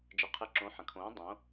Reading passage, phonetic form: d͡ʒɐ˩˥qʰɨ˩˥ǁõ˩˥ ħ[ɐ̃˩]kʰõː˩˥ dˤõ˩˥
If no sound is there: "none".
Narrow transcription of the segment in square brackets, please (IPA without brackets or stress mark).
ɐ̃˩